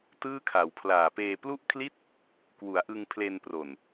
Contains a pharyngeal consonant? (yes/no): no